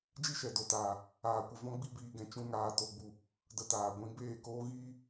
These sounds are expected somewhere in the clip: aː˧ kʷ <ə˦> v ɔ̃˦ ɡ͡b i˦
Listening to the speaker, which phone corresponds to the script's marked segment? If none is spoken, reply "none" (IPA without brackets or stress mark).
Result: ə˧